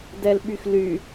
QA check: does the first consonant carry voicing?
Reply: yes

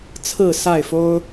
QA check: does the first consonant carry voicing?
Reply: no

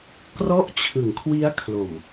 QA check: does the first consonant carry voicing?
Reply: no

